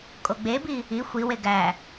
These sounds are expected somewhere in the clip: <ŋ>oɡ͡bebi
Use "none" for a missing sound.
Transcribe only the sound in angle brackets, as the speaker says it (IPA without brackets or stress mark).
kʼ